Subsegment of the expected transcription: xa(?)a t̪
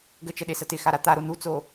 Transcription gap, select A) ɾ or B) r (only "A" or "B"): A